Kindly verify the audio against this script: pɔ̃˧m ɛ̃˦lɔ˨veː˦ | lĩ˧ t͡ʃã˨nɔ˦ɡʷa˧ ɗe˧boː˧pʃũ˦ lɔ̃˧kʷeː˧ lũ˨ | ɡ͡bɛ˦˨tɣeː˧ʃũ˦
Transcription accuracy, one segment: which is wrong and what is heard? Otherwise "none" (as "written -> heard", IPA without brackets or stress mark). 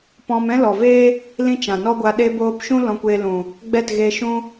none